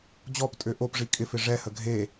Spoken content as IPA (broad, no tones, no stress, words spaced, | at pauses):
d͡ʑɔptʼø ʔopʐi kʼɪfɪ ʐɛhə ɡʱe